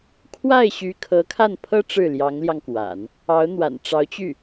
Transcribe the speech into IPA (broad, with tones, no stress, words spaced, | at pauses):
kʰwa˥˩ɪ̯ɕy˧˥ kʰɤ˧˥kʰa˥˩npʰɤ˥ ʈ͡ʂɻ̩˥˩ljɑ˧˥ŋljɑ˧ŋkwa̰˨˩˦n | ɑ˧˥ʊ̯ n̪wa̰˨˩nʈ͡ʂɑ˧˥ʊ̯t͡ɕy˥˩